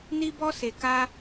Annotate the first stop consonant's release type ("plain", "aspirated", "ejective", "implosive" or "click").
plain